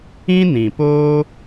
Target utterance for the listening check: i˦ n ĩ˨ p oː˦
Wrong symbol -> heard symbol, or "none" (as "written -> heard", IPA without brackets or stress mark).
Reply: i˦ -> ĩ˦